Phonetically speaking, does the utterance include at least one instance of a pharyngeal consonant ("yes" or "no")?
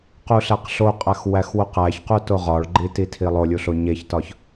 no